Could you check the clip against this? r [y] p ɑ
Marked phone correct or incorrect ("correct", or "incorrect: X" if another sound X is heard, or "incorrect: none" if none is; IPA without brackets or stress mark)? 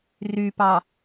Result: correct